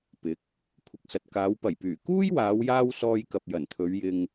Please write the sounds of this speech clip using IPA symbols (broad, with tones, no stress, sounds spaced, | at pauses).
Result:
p ɪ˨˥ k̚ | kʷʰ ɪ˨ k̚ s ɐ˨ t̚ k aː˨˧ w p ɐ˨˩ j p yː˨˩ k uː˥ j w aː˨˧ w j aː˧ w s ɔː˧ j k ɐ˨ p̚ j ɐ˨˩ n t̪ʰ ɵ˨˧ ɥ j ɪ˧ ŋ